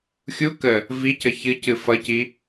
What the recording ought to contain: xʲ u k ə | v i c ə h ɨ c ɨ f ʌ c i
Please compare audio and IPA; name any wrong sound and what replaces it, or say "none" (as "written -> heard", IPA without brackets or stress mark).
h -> ç